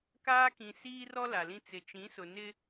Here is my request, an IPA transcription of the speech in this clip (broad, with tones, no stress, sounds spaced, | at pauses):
k aː˦ k ĩ˨ s iː˦ r ɔ˦ l a˨ l ĩ˦ t͡s ɪ˨ t͡ʃ ĩ˨˦ s ʊ˨ n ɪ˦